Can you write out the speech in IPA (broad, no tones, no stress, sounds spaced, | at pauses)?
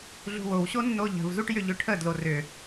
ɮ ṳ w o w ɕ o nː o ʎ ə̤ v z u ʈ j ʏ ʎ ʏ ʈʰ ə d l o r ʏ